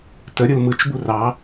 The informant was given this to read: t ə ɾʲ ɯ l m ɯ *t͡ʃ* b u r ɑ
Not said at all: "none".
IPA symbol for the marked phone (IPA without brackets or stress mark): t͡ʃ